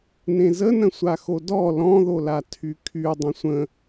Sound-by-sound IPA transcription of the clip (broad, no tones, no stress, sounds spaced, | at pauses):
n ẽ z ə n ə̃ sʷ a x o d ɔ l ɔ̃ ð o l a tʰ y kʰ y dˤ ə̃ sʷ ə̃